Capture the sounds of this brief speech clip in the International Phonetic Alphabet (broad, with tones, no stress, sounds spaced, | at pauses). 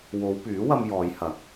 w o˨˧ w p yː˨˥ w ɐ˧ m j ɔː˨˧ j h ɐ˨˥ k̚